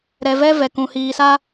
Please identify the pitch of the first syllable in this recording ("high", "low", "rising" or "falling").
low